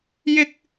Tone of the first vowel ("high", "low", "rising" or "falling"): high